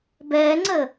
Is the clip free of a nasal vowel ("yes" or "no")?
yes